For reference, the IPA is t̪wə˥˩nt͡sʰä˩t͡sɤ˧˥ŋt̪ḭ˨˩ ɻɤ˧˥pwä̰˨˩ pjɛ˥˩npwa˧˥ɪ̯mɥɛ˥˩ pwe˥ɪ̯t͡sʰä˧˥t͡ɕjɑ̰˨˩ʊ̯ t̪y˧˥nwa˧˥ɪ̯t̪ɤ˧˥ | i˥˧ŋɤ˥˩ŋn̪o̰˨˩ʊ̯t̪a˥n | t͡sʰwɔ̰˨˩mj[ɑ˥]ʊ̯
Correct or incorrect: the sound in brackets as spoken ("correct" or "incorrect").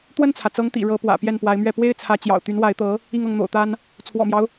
incorrect